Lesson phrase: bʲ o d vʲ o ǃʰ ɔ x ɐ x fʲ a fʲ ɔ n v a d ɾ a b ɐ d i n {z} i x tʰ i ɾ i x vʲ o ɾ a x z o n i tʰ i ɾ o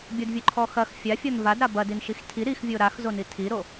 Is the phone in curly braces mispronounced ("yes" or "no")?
yes